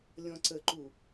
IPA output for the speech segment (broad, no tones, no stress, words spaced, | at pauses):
lʲɔ̃ǀəǃu